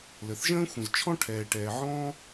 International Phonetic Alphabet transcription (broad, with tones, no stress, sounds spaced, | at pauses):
l ə˩ θ ʒ ə̃ː˥ xʷ ə̃˩ z t͡ʃʰ ɔ̃˥ ʈʰ ɛː˩ ʈ ɛː˩ ʕ ɔ̃ː˥